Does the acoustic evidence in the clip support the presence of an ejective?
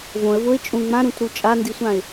yes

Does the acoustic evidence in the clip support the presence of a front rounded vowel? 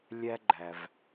no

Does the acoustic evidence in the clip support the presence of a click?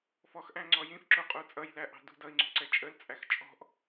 yes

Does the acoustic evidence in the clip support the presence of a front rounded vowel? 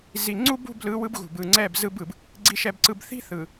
no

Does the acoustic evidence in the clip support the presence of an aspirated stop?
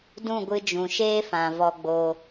no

